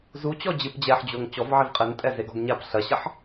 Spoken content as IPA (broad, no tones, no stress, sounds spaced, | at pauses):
z u t͡ɕ ɔ d͡ʑ ɨ p d͡ʑ ɛ ħ d͡ʑ o ŋ t͡ɕ ɔ v ʕ i v qʼ ɘ n tʼ ɛ z e ɡ ɔ ɡ ɲ a p ɬ ɐ ɕ ɐ ħ